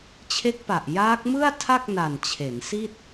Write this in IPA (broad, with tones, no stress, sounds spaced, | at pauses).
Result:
t͡ɕʰ e˦˥ k̚ p a˨˩ ʔ j aː˦˥ k̚ m ɯ˥˩ a̯ tʰ a˥˩ k̚ n a˨˩ n t͡ɕʰ e˩˦ n s i˥˩ t̚